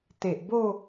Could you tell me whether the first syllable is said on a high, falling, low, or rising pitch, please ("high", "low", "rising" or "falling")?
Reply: low